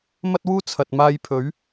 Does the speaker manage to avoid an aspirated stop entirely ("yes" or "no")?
no